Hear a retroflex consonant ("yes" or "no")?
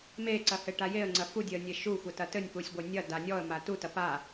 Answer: yes